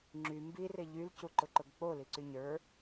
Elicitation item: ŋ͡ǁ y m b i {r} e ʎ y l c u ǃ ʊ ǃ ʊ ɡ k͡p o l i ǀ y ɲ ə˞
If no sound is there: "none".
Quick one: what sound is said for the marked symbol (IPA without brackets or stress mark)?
r